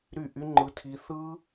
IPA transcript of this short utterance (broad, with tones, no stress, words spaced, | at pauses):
ɾy˦˨ʔy˦ ŋ͡ǃɯ˦tʰi˦ θɯ˦